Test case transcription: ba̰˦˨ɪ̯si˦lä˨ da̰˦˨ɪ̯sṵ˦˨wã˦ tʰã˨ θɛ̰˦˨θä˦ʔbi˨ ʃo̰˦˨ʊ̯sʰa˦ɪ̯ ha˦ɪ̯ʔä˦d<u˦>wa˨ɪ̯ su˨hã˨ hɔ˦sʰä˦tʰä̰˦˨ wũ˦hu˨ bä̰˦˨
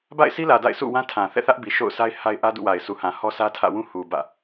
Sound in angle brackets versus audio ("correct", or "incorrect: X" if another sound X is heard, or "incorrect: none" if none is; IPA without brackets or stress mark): incorrect: ṵ˦˨